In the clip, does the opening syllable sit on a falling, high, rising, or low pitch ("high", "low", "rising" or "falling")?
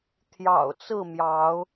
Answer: low